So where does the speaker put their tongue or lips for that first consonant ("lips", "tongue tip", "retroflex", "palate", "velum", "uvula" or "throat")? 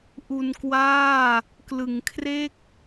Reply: throat